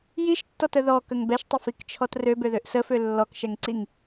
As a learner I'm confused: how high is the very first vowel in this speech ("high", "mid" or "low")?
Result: high